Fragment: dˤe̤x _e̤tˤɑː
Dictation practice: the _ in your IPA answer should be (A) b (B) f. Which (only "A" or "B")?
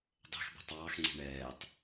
A